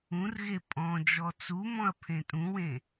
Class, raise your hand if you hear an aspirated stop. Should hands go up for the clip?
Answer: yes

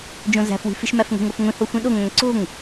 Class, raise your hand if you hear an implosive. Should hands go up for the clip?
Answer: yes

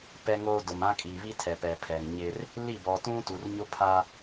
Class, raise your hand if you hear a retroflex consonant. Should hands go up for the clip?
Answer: no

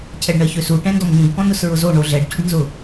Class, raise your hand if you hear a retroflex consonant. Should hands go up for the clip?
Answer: yes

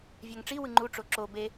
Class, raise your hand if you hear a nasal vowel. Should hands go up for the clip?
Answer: no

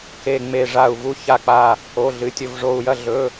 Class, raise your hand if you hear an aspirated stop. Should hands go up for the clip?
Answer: no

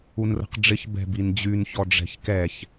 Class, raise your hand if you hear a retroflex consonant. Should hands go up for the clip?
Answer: yes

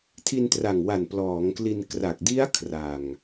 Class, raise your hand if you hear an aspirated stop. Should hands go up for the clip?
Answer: yes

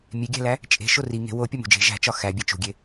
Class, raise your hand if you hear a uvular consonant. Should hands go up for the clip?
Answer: no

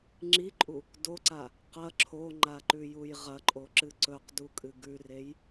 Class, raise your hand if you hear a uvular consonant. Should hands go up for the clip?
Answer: yes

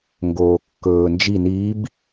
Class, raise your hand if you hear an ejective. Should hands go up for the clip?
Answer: no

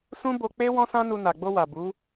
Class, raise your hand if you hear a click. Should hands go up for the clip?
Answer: no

